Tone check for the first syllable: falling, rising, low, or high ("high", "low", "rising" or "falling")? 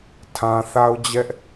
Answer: low